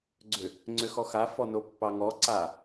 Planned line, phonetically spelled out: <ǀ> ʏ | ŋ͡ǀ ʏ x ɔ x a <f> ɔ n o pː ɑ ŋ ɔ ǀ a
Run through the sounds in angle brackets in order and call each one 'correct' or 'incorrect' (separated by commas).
incorrect, correct